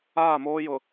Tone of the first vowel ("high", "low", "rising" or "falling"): falling